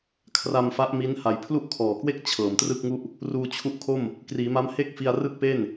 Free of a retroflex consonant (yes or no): yes